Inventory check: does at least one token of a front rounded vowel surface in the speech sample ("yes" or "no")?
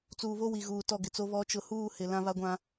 no